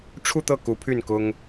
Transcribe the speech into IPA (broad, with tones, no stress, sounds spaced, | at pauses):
ʈ͡ʂʰ u˥˧ t̪ ɤ˥˩ k u˧˥ pʰ y˥˩ n k ʊ˥ ŋ